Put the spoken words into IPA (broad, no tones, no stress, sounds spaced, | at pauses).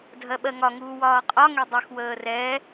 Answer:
dʱ ɜ ɓ ɜ ŋ ɒ ŋ uː w ɒː qʼ ɒ ŋ ɛ dˤ ə x w əː r ɛ